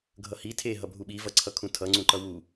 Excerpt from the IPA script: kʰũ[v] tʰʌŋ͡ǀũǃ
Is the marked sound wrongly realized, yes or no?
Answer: yes